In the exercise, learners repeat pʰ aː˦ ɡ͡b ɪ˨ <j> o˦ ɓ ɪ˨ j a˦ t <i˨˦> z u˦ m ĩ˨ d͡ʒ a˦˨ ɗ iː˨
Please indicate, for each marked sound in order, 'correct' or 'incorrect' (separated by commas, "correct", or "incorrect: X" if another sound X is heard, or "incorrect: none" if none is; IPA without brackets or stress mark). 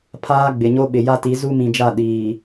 incorrect: ɲ, correct